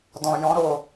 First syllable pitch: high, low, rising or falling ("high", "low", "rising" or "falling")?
low